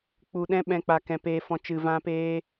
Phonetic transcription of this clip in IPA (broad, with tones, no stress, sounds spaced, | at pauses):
k͡p u˧ ɗ ɛ̃˦ ɓ ɛ̃˧ k͡p a˧ k ɛ̃˧ p eː˧ f ɔ̃˧ t͡ʃ ɨ˧ v ã˦ p eː˦